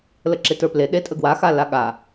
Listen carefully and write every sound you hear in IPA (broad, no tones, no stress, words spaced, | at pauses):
ləǁetə˞ple ɗetʼəɡwa xalaɠa